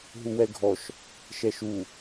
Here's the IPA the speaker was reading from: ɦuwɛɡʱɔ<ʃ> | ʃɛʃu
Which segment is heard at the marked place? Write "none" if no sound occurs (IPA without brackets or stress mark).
ʃ